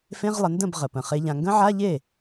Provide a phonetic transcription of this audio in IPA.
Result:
f ẽ˧˥˧ ʁ lˠ ə˩˧ n d ə̃˥˩ b ʁ ə˩ p ə̃˩ χ e˩˧ ʎ ã˩ ŋ ɡ ə̃˦˥ ʕ a˧˥˧ ʎ e˥˩

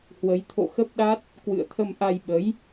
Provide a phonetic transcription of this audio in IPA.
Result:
h w ə˨˦ j t̪ʰ o̰˧˨ x ə˦˥ p̚ ɗ a˦˥ t̚ | k w ɨ̰˧˨ ə̯ t̪ʰ ə˧ m ʔ a˧ j ɓ ə˨˦ j

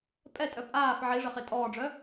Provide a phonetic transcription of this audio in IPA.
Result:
pʼ ɛ tʼ œ pʼ aː f ʕ i ʐ ə χ e tʼ ɔː ɖ͡ʐ œ

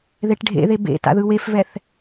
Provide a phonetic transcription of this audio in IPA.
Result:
ð e ʈ ɖʱ ḛ ð e b ḛ t a̰ ð ɯ w e f v ɛ θ

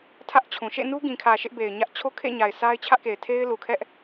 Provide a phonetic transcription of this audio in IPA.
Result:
tʰ ä˦ ʔ t͡ɕʰ ũ˨ ʃ ḛ˦˨ n u˦ ɡ ĩ˨ kʰ ä˨ ʃ ɪ˦ ʔ b e˨ ɪ̯ ɲ ä˦ ʔ t͡ɕʰ o˦ kʰ ḛ˦˨ ɲ a˨ ɪ̯ sʰ a˦ ɪ̯ t͡ɕʰ ä˦ ʔ k e˨ ɪ̯ tʰ e˦ ɪ̯ l u˨ kʰ ɛ˦ ʔ

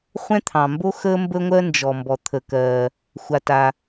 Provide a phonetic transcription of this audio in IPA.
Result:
χʷ ɛ̃˥ t̪ʰ ɑ̃˩ m b o˥ x əː˥ m b ə˥ ŋʷ ɜ˥ n d͡ʒ ɔ˩ m b ɔ˩ t̪ʰ ə˩ k ɜː˩ | xʷ a˩ t a˩

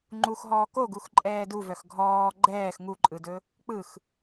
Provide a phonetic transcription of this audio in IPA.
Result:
ŋ͡ǃ u x ɦ ɔː k o ɡ u x ǃʼ ɛː d u v œ x ɡʱ ɔː ɡ͡ǃ ɛː x ŋ u ǃʼ ɯ d ɵ | k͡p ɯ x

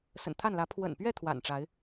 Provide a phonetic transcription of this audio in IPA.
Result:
s ə̰˨˩ n t̪ʰ a˥˨ n l ä˨˦ pʰ w ə̰˨˩ n p ɥ ɛ˥˨ t̪ʰ w a̰˨˩ n ʈ͡ʂ a˨˦ ɪ̯

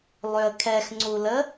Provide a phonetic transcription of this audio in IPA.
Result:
lˠ ø ə̯ kʰ ɛ x ŋ͡ǀ u l ə

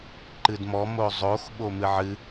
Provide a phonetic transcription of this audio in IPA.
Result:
ǃ ɨ d m ɔ m o zˤ o x ɓ o m ɨ ʕ ɨ

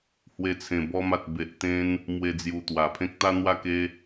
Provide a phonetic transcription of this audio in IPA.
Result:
h w e˧ t͡sʰ ẽ˨˩ b ɔ˧ m a˨ t̚ b e˨ ʔ t̪ ẽ˧ n | m w e˧ d͡z j u˨˩ t̪ w a˨˩ pʰ ẽ˦ k̚ t̪ a˦ n̪ w a˥˧ k e˦

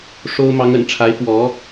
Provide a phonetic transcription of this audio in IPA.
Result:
ʂ o˥ ʊ̯ m ɑ˧˥ ŋ ə̰˨˩ n ʈ͡ʂʰ a˧˥ ɪ̯ f w ɔ˧˥

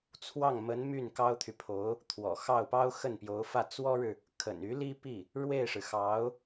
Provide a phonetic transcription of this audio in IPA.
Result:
t͡sʰ w ɑ˥˩ ŋ m ə˧˥ n m y˥˩ n k ɑ˥ ʊ̯ t̪ʰ y˨ pʰ o˧˥ ʊ̯ | t̪ʰ w ɔ̰˨˩ x ɑ˥˩ ʊ̯ p ɑ˥ ʊ̯ x ə˥˩ n p j o˧˥ ʊ̯ f ä˥˩ t͡s w ɔ˥ ɻ ɻ̩˨ | kʰ ə̰˨˩ n y˧˥ l i˥ p i˥˩ | ɻ w e˥˩ ɪ̯ ʂ ɻ̩˩ x ɑ˧˥ ʊ̯

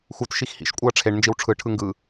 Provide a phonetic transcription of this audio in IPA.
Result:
x u t ʃ i x h ḭ ʃ kʷʼ ɤ ɐ̯ ʈ͡ʂʰ e ɳ n d͡ʒ i w ʈ͡ʂʰ ɯ ʈʰ ɯ ŋ ɡ ɯ

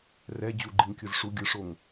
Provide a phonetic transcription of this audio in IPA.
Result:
r ɛ d͡ʑ u ɡ͡ǃ i ŋ kʲ ɯ z ʂ u ɡʲ ɯ ʂ o ŋ

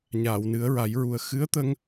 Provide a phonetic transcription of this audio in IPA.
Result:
ɲ aː˨˩˨ w n ɨ˨˩˦ ə̯ ɹ a˨˩˦ j ɹ u˨˩ ə̯ x ɨ˧˥ ə̯ t̪ ə˧ ŋ

